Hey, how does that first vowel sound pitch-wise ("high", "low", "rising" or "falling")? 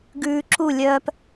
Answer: low